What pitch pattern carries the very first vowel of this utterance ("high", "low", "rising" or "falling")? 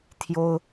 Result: high